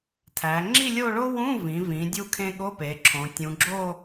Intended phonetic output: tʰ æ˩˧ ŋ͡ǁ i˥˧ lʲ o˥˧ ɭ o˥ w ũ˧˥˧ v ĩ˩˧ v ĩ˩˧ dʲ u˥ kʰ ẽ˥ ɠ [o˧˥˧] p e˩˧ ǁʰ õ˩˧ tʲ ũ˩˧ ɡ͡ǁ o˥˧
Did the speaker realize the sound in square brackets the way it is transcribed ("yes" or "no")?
yes